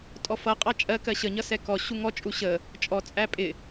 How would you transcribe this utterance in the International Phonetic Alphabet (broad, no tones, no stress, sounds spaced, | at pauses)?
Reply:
tʼ ɔ f ʌ qʼ ɑ t͡ʃʼ ɜ k ɜ ɕ ə ɲ ʌ s ɛ k ɔ ɕ u ŋ ɔ t͡ʃʼ u ɕ ə | t͡ʃʼ ɔ t͡sʼ æ pʼ ɪ